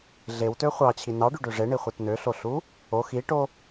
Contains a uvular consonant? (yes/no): yes